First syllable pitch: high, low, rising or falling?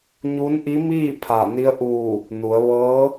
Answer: rising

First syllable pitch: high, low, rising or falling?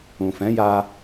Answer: low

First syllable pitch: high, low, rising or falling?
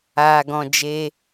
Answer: low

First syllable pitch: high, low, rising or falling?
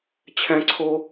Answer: high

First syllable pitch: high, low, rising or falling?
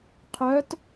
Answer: rising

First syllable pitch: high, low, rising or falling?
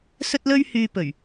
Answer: high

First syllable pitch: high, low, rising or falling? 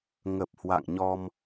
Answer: low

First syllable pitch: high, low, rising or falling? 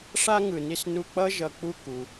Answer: high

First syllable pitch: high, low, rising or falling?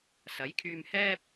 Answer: rising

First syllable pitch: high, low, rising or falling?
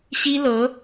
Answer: high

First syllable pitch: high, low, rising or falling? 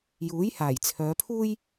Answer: rising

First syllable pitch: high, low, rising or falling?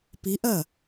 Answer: rising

